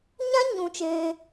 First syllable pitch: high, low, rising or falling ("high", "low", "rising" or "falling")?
high